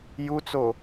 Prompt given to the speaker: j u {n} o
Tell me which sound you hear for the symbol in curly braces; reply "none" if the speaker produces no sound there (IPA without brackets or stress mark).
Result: t͡s